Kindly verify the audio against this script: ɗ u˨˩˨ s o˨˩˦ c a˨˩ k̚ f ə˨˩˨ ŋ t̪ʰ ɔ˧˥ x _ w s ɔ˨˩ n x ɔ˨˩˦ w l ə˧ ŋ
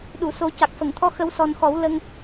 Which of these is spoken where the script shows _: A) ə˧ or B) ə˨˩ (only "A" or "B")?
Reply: A